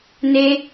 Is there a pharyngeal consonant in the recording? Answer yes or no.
no